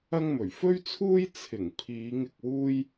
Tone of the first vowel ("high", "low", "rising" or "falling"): high